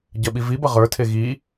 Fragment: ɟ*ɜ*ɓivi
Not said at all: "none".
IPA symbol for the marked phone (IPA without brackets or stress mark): ɜ